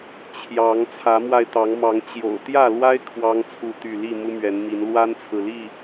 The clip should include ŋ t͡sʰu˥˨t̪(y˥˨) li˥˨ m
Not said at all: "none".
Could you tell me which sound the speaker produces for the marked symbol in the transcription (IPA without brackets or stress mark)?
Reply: y˥˨